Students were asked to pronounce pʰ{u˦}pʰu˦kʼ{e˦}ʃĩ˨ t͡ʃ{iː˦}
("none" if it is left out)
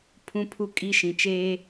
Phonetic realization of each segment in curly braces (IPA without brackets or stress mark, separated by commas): ũ˦, i˦, eː˦